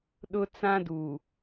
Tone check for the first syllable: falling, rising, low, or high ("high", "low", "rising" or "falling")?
high